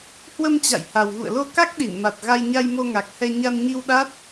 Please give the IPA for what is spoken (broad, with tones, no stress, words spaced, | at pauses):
hwə˧mt͡ɕa̰˧˨j ha˨˩wɣṵ˧˨ə̯lo˧ ka˦˥k̚ɗi˧˩nma˨˩t̚ ɣa˧jɲa˧jmo˧ŋa˨˩k̚ hɛ˧ ɲa˧nɲi˧w ɗa˦˥t̚